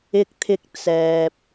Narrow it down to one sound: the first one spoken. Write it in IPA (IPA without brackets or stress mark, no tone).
ɪ